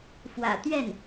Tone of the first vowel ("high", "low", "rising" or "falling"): low